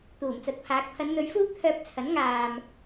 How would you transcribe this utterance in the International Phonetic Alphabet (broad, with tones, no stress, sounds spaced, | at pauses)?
t̪ uː˨˩ m t͡s ɐ˨˥ t̚ pʰ aː˨˥ k̚ pʰ ɐ˨˧ n n̪ ɵ˨˧ ɥ f uː˥ k̚ t̪ʰ œː˧ p̚ t͡sʰ ɐ˨˥ n ŋ aː˨ m